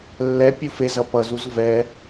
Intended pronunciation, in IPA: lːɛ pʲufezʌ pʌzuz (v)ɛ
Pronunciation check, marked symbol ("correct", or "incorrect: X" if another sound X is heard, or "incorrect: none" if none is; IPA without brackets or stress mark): correct